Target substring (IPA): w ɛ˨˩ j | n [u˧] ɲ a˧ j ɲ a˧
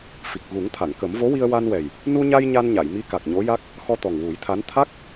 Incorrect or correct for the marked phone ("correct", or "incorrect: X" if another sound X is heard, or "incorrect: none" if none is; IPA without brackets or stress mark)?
correct